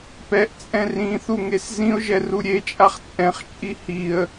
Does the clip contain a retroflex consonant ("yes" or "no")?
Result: no